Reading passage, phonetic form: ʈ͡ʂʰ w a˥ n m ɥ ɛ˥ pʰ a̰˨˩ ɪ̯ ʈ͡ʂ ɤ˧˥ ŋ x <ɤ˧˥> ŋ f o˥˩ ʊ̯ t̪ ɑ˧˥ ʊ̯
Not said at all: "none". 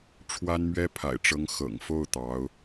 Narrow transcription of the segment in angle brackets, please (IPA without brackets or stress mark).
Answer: ɤ̰˨˩